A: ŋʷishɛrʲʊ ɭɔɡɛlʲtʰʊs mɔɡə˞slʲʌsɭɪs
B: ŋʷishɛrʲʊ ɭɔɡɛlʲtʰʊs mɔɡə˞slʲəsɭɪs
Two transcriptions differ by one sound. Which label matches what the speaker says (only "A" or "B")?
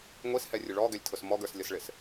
A